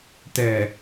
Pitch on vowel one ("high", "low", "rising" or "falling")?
low